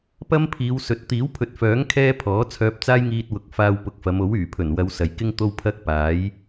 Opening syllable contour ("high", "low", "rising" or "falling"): high